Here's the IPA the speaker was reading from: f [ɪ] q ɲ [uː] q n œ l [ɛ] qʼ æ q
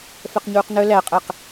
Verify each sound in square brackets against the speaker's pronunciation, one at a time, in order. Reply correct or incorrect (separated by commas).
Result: incorrect, correct, incorrect